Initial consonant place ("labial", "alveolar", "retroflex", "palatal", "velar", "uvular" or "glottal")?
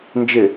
alveolar